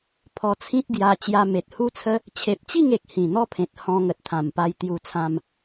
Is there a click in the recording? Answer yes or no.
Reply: no